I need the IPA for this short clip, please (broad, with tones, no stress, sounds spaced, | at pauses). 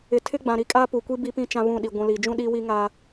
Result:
ɪ˨ tʰ ɪ˦ ɡ͡b ã˨ ɾ i˦ kʼ aː˦ p u˨ kʷ i˦ b i˦ p ĩ˦ t͡ʃ ã˦ β ũ˦˨ ɗ i˨ ɡʷ ũ˨ l iː˨ d͡ʒ ũ˦ ɗ iː˦ w i˦ ŋ a˦